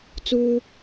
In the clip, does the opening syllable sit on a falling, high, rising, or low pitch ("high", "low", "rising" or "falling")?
high